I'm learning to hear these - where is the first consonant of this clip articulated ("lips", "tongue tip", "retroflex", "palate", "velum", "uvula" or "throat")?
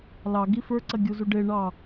tongue tip